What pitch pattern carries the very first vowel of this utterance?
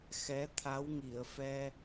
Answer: rising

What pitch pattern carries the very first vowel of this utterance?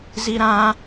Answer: high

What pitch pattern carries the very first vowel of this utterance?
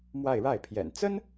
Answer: falling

